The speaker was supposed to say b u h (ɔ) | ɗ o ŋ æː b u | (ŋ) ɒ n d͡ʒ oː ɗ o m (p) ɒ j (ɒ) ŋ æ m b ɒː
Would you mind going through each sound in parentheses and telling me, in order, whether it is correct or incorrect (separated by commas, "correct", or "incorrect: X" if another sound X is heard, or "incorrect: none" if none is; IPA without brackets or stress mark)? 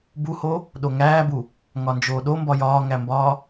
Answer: incorrect: o, correct, incorrect: b, incorrect: ɒː